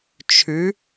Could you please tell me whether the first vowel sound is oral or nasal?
oral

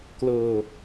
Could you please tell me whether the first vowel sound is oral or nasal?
oral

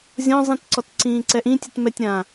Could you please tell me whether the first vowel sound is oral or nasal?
nasal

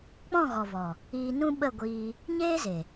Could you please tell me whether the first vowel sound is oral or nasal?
nasal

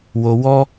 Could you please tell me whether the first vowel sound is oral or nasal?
oral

